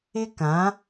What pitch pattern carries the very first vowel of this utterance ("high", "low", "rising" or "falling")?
high